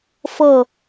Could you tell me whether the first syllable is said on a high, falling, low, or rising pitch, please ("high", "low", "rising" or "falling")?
falling